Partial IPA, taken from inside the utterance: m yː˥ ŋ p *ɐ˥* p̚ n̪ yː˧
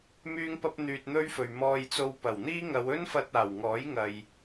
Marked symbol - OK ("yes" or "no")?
yes